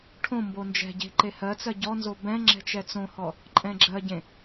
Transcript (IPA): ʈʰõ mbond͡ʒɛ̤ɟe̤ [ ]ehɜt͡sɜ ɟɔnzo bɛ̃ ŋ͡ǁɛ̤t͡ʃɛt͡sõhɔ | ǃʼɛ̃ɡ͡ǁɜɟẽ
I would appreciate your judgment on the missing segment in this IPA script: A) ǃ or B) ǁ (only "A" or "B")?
A